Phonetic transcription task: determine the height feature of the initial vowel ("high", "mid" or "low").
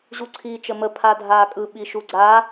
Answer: high